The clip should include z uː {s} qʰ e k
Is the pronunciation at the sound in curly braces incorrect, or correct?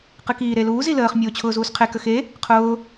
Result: correct